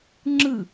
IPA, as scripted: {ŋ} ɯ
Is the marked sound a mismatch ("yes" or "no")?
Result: yes